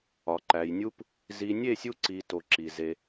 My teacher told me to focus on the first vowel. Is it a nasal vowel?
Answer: no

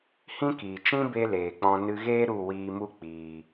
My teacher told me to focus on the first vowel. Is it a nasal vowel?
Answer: yes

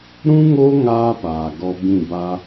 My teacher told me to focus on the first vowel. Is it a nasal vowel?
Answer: yes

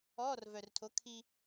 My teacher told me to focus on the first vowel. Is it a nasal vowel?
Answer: no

